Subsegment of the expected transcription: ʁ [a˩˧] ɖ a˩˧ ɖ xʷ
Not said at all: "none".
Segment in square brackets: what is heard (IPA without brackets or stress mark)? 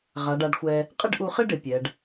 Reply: a˩˧